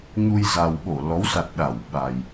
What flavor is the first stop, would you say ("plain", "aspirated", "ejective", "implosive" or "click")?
implosive